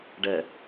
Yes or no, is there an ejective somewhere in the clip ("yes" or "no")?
no